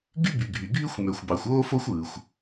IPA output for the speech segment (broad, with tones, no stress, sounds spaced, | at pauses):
ɡ y˥ b y˩ ɡʱ y˩ ɡʱ y˥ xʷ m ø˩ xʷ b ɑ˩ xʷ oː˥ f o˥ xʷ ɯː˩ xʷ